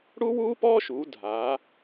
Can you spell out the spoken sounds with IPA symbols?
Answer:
ɽ u˥ w uː˥ p ɔː˥ ʃ uː˩˧ dʱ aː˩˧

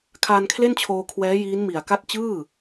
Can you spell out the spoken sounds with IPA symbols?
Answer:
kʰ aː˧ n kʰ l e˥˩ n t͡ɕʰ oː˧ kʰ w ɛː˦˥ j iː˦˥ n m i˨˩ a̯ k a˥˩ t̚ t͡ɕ ɯː˥˩

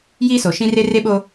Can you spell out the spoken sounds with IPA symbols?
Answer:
j iː˦ s o˨ ʃ ĩ˦ r e˦ r e˦ ɓ o˦

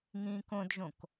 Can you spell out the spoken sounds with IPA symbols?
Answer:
ŋ ĩː k õ d ʒ õ k

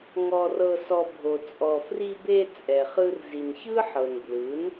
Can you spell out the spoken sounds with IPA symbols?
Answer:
ŋ ɔ˧ r ɤ˧ s ɔ˧ bʱ o˨ t͡sʼ ɔ˨ f r i˧ b e˧ t͡sʼ ɛ˨ χ ɯ˧ r z i˨ n ç ɯ˦ ħ ɤ˨ n b l ɯ˨˦ n

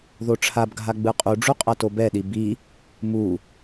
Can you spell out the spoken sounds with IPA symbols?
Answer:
ð o ʈ͡ʂʰ a b ɡʱ a ɡ͡b ɯ qʼ u ɖ͡ʐ u qʼ a t o b ɛ ɗ i b i | m u

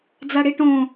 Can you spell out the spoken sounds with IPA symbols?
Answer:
d͡z a ɽ i ʈ õ

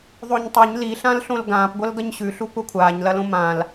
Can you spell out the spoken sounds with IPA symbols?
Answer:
ðˤ o ɲ tˤ o ɲ l i ɬ ã l ɬ õ l ɡ ãː p ɡʷ ɐ l ɡ ɐ ɲ ɕ ʉ ɬ u kʷ a kʷʰ aː ɲ l ɐ l õ m ã l

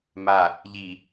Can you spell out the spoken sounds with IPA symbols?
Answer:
m a | ʎ i

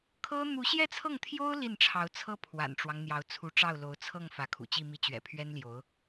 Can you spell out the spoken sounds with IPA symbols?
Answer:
kʰ ɤ˥ n̪ u˧˥ ɕ j ɛ˥˧ t͡sʰ ɤ˥˩ ŋ t̪ʰ j o˥ ʊ̯ l i˥˩ n ʈ͡ʂʰ ɑ˧˥ ʊ̯ t͡sʰ ɤ˥ pʰ w a̰˨˩ n ʈ͡ʂ w ɑ˦ ŋ n̪ j ɑ˧˥ ʊ̯ t͡sʰ u˧˥ ʈ͡ʂ ɑ˥˩ ʊ̯ l o˧˥ ʊ̯ t͡sʰ ɤ˥˩ ŋ f ä˧˥ kʰ ṵ˨˩ t͡ɕ i˥˧ m i˥˩ t͡ɕ ɥ ɛ̰˨˩ pʰ ɥ ɛ˥ n l j o˧˥ ʊ̯

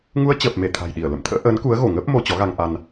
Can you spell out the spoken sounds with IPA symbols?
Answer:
ŋ u˧ ə̯ t͡ɕ əː˨˩ p̚ m e˧˩ t̪ʰ a̤˨˩ j ɗ i˧˩ ə̯ l ə̰˧˨ m t̪ʰ ə̰ː˧˥ ʔ əː˨˦ n k u˨˦ ə̯ ɣ o˧˩ ŋ əː˦˥ p̚ m o˧ t͡ɕ ɔ˨˦ ɣ a˧ ŋ ʔ a˧ n

